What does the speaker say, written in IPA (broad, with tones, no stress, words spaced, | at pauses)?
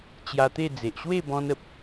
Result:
t͡ɕja˧t̪e˥˧ d͡ze˨ʔɕwe˥˧bɔ̃˧nə˨p̚